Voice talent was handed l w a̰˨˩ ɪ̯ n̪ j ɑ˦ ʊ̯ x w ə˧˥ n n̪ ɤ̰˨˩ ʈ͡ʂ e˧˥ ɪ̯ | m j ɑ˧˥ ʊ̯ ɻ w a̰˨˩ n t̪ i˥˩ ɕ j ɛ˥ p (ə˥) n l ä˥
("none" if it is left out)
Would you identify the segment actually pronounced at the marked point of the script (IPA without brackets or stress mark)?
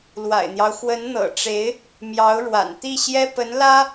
ə˧˥